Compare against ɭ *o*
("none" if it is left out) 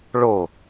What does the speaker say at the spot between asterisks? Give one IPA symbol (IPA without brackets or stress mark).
o